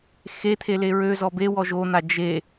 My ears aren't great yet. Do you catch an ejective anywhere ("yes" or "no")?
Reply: no